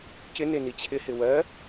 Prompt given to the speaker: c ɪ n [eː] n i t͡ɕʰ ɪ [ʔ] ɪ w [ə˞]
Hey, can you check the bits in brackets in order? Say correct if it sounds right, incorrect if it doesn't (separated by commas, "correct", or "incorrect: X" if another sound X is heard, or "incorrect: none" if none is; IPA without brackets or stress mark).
incorrect: e, incorrect: h, incorrect: ɜ